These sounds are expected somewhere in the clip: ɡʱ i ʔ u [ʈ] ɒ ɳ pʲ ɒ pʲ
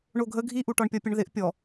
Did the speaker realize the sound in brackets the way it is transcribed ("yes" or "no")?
yes